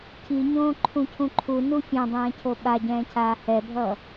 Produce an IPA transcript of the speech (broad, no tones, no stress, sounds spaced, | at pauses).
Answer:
cʰ i ɲ õː ǃʰ ũ cʰ ũ ǃʰ u n u fʲ ã dˤ ɛ̃ː cʰ o ɓ a ɟ ɛ̃ː cʰ aː h ɛ bʱ ʌː